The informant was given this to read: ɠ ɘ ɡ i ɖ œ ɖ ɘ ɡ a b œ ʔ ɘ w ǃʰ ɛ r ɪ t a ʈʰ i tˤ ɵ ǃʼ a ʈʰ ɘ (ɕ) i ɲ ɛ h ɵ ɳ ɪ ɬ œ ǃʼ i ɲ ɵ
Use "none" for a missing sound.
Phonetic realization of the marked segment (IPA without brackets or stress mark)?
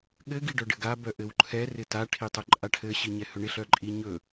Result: ɕ